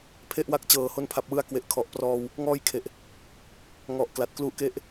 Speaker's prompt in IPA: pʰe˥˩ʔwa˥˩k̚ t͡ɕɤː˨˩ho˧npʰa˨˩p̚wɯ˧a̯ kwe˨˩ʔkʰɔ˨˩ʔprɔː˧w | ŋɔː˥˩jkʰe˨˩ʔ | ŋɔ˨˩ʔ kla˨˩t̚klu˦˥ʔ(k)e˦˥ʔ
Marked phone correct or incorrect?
correct